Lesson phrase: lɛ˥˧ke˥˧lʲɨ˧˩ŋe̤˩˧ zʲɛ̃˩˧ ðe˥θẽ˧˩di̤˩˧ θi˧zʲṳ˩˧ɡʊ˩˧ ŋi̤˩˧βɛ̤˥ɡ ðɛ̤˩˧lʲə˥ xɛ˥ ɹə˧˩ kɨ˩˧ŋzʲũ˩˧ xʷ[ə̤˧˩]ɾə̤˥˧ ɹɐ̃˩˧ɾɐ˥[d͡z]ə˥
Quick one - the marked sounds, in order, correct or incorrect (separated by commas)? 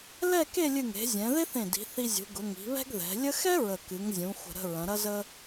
correct, incorrect